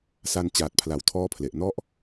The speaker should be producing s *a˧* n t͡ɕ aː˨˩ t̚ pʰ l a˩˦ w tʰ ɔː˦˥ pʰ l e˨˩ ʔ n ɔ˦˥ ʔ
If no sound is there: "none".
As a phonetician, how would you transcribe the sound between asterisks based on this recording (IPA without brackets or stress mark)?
a˧